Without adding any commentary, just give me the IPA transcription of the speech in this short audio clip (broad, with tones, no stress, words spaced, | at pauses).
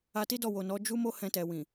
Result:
a˧ti˦dɔ˦˨ wo˨nɔ˨˦ d͡ʒu˦mo˦ hɛ̃˧tɛ˨ wĩ˨